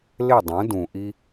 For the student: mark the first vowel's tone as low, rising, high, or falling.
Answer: falling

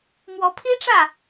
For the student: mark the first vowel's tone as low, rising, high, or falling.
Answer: rising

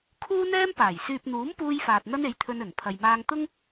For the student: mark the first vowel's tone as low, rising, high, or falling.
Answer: high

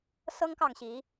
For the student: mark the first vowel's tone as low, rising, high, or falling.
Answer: high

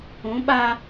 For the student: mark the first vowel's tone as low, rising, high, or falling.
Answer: rising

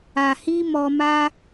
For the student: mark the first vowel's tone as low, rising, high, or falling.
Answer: low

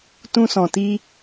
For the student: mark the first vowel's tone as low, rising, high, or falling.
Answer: high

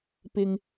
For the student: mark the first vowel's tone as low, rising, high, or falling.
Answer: low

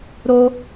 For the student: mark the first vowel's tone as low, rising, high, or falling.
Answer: high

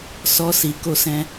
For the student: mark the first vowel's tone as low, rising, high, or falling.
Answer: high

